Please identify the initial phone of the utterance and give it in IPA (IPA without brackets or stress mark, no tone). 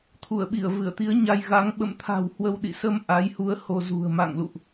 t̪ʰ